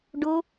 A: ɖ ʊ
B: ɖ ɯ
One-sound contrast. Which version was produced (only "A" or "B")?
A